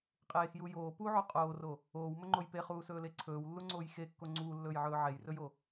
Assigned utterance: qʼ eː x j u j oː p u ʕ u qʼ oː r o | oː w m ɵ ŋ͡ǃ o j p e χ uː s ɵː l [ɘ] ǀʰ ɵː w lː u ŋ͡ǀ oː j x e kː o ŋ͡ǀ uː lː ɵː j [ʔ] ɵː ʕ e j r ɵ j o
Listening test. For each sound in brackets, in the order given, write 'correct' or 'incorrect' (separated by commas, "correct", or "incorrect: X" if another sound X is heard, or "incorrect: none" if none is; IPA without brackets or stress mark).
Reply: incorrect: e, incorrect: ʕ